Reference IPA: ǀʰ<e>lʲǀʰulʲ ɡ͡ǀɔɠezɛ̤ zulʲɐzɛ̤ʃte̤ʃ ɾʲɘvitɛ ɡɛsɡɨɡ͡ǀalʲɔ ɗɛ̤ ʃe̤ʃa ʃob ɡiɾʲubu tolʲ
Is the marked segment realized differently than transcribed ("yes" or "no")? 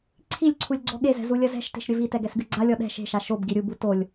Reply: yes